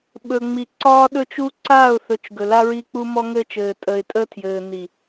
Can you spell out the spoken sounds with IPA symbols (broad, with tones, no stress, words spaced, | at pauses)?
ɓɵ˨ŋ͡mi˨ ǀɒː˦ɗɵ˦t͡ʃu˦ ǀaː˦˨ʊ̯θɵ˨t͡ʃ ɡɵ˨la˦ɹi˦ k͡pu˦mɔ˦ŋɘ˦t͡ʃɘː˨ tʼə˨ɪ̯tʼə˦tʰjɘː˨ ni˨